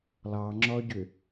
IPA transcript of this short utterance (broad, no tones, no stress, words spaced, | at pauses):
lˠɑŋ͡ǁɔɟʏ